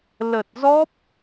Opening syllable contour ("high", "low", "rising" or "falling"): low